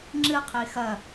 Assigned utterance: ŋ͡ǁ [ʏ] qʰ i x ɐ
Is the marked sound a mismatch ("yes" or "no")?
yes